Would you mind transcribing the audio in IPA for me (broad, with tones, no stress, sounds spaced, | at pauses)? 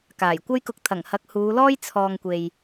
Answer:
k aː˨˩ j kʷ ɐ˥ j k ʊ˧ k̚ t̪ʰ ɐ˨˩ ŋ h ɐ˨˥ k̚ h uː˨˧ l ɔː˥ j t͡sʰ ɔː˨ ŋ kʷ e˨ j